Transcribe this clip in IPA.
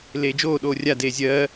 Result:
l eː d͡ʒ oː ɗ oː rʲ a d eː zʲ ɜː

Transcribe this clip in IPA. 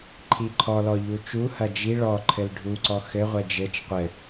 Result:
ǃʰ i ǃʰ ɔ l ɔ ʎ u t͡ʃ u h ɐ d͡ʒ i ɭ ɔ ǃʰ ɘ l ɖʱ u ǀ ɔ x ɘ ʁʷ ɛ d͡ʒ ɘ t͡ʃ qʷ ɘ

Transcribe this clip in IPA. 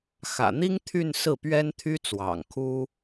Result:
x ä̰˨˩ n̪ i˥ ŋ t̪ʰ y˥˧ n s ɹ̩˥˩ p ɥ ɛ˥ n t̪ʰ y˥ t͡s w ɑ̰˨˩ ŋ kʰ u˥

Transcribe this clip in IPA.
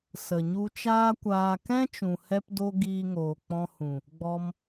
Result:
s ə˨ ɲ u˧ t͡ʃ aː˦ kʷ aː˧ k ɛ̃˦ t͡ʃ ũ˨ h ɛ˧ p d o˧ ɡ iː˧ ŋ oː˨ k͡p ɔ̃˧ h ũ˨ | ɡ͡b ɔ˧ m

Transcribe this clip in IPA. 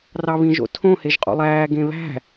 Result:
r ɑ β ĩ ʒ o̰ tʰ õ h e ʒ qʼ o̰ lˠ æː ɡ ẽ β æ̤

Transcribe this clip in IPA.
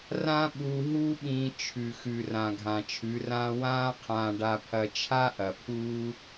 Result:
r ã˦ ɓ u˧ ɦ uː˦ ɓ ĩː˧ t͡ʃʰ ʉ˨ x ʉ˨ r ã˨ ɡʱ ã˨ t͡ʃʰ ʉ˨˦ r ãː˦ w ãː˦ qʰ ãː˧ ɖ a˧ pʰ ɐ˧ t͡ʃʰ a˦ ʔ ɐ˨ pʰ uː˦

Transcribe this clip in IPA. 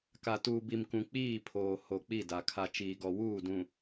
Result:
k a˨ t uː˨ b i˨ m k ũ˨ k͡p iː˦˨ pʰ oː˨ h o˨ k͡p i˦˨ d a˨ kʰ a˨ t͡ʃ iː˨ ɡ ɔ˨ w uː˦˨ d ũ˨

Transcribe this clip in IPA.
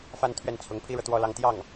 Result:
f a˥˧ n t̪ʰ ɥ ɛ˥˩ n t͡sʰ ʊ˧˥ ŋ pʰ i˥ ɻ ɤ˨ t̪ w ɔ˥˧ l ɑ˥˧ ŋ t̪ j ɑ˥˩ ŋ

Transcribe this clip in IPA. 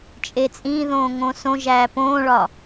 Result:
t͡ʃʼ e t͡sʼ ĩ ð õː ŋ õ s õ ʒ æː p õː ɭ ɒ

